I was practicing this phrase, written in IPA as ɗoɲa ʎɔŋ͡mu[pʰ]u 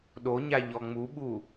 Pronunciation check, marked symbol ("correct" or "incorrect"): incorrect